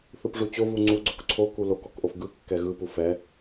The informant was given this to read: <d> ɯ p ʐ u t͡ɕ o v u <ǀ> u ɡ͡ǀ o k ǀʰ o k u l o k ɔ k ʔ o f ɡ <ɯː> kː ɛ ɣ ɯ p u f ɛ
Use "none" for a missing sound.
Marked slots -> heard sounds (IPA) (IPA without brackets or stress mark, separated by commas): θ, ŋ͡ǀ, ɯ